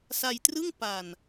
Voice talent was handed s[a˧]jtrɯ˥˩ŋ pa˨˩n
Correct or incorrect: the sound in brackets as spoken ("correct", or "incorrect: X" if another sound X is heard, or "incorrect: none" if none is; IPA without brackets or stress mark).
correct